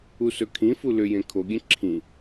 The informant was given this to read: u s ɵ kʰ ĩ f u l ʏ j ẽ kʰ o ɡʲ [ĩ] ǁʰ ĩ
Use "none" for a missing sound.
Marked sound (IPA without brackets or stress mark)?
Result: ẽ